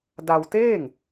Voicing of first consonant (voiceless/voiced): voiced